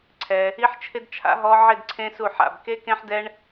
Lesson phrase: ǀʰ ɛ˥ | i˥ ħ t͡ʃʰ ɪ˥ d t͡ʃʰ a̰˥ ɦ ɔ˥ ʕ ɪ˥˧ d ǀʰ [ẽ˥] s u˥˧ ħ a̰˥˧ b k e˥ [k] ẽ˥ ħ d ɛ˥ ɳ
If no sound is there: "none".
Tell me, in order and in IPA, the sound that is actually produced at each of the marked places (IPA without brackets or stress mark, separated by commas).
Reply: ẽ˥, k